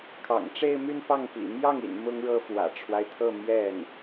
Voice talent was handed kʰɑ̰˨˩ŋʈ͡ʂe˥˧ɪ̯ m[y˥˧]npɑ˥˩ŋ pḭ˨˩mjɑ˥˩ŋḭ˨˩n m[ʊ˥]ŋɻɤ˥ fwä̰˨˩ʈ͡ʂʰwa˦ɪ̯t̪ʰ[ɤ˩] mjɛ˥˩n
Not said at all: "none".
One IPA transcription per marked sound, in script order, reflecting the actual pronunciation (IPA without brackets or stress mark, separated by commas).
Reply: y˥˧, ʊ˥, ɤ˥˧